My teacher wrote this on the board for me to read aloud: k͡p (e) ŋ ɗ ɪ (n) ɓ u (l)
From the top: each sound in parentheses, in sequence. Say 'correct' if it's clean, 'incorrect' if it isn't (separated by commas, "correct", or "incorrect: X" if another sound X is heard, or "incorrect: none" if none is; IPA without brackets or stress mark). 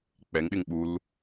incorrect: ɛ, incorrect: ŋ, correct